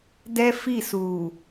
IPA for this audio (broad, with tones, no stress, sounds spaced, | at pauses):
d ɛ˦ f i˦˨ s uː˨